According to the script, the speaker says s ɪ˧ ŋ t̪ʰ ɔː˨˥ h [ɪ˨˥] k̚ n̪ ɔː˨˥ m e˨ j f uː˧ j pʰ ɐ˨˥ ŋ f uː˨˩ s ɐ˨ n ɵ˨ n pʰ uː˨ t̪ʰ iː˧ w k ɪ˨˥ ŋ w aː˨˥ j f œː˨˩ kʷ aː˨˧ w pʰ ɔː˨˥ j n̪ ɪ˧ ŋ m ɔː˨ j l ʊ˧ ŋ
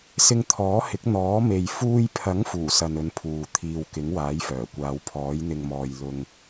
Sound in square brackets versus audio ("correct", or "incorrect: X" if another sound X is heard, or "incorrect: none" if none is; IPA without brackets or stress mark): correct